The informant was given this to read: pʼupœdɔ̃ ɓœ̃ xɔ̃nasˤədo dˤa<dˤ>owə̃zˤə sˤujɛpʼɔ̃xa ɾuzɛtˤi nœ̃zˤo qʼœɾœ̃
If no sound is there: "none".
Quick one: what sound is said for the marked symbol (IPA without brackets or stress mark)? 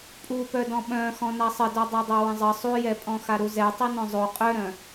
dˤ